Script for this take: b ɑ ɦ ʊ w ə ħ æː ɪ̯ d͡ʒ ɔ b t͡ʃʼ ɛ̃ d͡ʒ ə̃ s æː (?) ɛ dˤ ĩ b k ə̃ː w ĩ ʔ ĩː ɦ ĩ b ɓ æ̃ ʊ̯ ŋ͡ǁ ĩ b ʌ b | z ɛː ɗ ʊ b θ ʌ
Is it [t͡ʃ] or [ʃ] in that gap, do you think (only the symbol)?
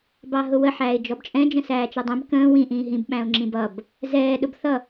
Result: t͡ʃ